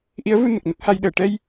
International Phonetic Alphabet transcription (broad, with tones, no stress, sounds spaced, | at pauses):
ʔ i˧˥ ə̯ v u˧ n ə˨˩ k̚ n ə˦˥ k̚ h a˧ j ɗ əː˨˩ ʈ ɛ˧ j